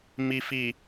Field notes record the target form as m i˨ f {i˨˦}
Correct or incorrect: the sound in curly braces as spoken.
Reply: incorrect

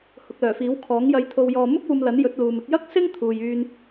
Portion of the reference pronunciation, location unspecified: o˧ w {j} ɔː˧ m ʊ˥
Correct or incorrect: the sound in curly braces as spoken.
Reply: correct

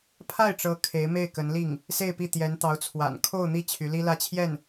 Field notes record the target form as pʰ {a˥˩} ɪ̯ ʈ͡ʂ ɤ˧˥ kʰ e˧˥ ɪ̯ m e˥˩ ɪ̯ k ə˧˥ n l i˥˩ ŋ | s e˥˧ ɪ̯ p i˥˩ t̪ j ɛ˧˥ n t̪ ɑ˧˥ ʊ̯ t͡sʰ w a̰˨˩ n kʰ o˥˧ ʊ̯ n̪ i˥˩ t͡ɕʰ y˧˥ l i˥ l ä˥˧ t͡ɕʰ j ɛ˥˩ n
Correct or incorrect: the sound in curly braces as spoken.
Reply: correct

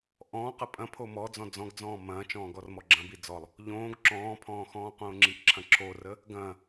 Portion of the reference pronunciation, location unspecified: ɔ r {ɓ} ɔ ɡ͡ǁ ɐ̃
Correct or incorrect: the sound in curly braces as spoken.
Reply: incorrect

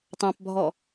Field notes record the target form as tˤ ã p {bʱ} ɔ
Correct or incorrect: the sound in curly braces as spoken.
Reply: correct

